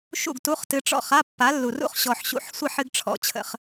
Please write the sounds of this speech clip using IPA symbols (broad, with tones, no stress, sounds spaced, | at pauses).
ʃ ṵ˥˨ ɡ t u˧˥˧ χ t ɨ˧ ʈ͡ʂ ɔ̰˥˨ χ a˧˥˧ pː a˨˥ lː u˨˩ r ṵ˥˨ χ ɕ ɔ˨˩ ħ ɕ ṵ˨˥ ħ sʷ ə˥˨ ħ ɨ˧ ɡ ʈ͡ʂʰ ɔ̰˧˥˧ t͡ɕʰ ə̰˧ χ